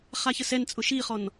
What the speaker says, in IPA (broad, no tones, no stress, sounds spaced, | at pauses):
χ a ç ə s ɛ n t͡sʼ ʊ ʃ i χ ɔ n